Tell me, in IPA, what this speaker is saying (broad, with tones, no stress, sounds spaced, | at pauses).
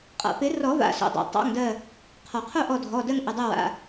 qʼ a̰˩ p ɪ˨˩˦ r ɔ˨˩˦ v a̰˩˧˩ s o̰˧˩ dˤ a̰˨˩˦ tˤ ɑ̰˩˧˩ ŋ d ɜ˧˩ | qʰ ɔ˩ qʰ o˥˧ ʔ ɔ˧˩ dʱ ɔ˩˧˩ d ɜ˥˧ ŋ ʔ ɪ˩˧˩ dˤ ɘ˥˧ w a̰˩˧˩